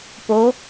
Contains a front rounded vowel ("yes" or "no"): no